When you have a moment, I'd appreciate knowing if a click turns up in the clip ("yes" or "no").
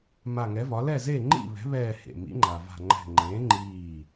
yes